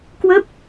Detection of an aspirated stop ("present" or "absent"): absent